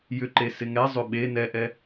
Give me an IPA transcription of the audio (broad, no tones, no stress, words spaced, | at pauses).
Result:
jʏǃe sɪŋɛ zˤʏɓe nɛʔɛ